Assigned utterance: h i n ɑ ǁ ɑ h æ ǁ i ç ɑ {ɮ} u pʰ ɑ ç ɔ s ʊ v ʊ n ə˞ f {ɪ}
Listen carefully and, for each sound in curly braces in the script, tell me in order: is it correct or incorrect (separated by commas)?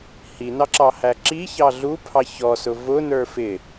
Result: correct, correct